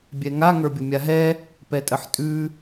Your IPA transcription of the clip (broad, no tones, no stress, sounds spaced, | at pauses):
bʲ ɛ ŋ a ŋ ə˞ bʲ ʊ mʲ a ɦ ɛ | p ɛ tʼ ə ħ tʼ ʉ